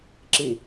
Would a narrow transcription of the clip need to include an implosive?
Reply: no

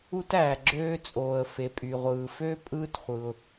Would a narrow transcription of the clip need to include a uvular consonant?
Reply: yes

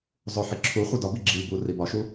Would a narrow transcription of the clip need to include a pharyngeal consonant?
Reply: yes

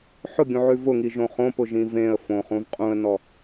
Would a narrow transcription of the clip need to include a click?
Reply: no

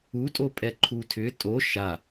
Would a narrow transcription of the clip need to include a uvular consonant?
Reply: no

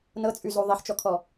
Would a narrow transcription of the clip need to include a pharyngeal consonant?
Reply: yes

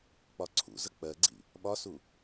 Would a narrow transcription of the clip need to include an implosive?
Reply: yes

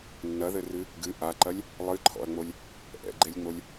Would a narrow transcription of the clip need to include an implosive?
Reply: no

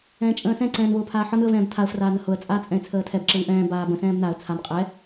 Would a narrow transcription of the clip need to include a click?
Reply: yes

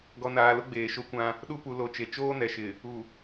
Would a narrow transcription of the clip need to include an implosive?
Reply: yes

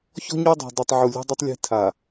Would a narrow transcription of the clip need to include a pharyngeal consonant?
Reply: yes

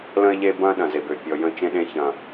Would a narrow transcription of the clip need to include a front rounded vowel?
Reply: yes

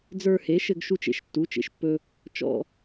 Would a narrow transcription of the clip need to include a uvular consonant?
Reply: no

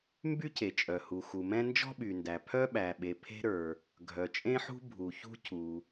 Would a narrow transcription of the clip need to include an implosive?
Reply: yes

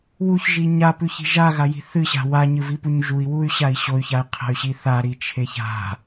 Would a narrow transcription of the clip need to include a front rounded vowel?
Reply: yes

